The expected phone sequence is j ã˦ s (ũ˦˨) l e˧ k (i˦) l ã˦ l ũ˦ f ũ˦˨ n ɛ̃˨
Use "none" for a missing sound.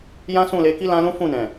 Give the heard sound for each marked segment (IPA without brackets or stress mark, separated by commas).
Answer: ũ˦˨, i˦